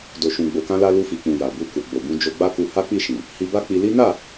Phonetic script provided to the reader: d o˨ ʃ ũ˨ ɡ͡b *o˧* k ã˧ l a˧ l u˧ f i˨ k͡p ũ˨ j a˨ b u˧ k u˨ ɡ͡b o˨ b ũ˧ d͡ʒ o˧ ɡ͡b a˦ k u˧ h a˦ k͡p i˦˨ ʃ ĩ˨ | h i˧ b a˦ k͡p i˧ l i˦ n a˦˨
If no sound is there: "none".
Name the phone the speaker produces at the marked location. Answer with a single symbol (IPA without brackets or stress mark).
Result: o˨